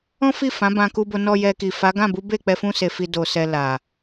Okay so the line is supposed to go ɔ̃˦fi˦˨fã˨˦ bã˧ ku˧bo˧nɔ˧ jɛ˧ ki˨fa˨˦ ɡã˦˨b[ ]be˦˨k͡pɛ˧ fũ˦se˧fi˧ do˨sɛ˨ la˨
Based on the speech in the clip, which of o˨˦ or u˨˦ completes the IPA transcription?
u˨˦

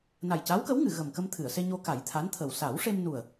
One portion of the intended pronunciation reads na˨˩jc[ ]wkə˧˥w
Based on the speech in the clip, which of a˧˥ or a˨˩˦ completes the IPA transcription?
a˧˥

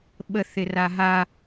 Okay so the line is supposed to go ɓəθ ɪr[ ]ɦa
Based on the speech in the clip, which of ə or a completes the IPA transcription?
a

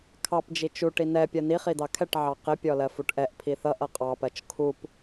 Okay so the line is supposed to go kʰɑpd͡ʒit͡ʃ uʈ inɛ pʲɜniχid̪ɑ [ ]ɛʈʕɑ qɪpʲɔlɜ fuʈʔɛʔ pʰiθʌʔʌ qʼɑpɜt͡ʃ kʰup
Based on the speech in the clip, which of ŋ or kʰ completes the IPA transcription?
kʰ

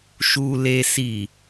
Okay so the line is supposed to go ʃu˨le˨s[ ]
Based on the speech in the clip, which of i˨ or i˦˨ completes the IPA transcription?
i˨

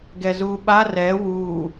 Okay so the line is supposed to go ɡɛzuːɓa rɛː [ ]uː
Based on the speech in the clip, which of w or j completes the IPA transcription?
w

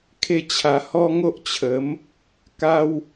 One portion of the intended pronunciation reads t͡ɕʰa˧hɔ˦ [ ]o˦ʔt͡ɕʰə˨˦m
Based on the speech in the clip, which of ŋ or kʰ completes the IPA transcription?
ŋ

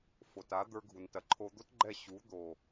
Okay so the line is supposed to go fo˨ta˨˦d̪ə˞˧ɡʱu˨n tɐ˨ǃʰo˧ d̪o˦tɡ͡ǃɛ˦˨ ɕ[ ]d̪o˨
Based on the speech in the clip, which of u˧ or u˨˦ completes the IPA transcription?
u˨˦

